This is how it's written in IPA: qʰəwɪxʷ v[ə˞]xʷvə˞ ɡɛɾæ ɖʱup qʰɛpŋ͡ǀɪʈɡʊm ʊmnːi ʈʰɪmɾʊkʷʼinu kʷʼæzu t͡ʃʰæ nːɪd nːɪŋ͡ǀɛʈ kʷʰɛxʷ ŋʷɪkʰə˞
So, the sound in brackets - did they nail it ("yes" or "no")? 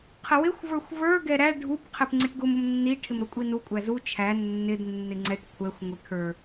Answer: yes